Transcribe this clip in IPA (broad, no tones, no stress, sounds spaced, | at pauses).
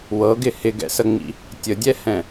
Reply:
w ɤ ɡ ɪ h ɪ ɡ ɛ̰ s ə ŋ͡m ḭ | tʲ ə dʲ ɛ h ɛ̃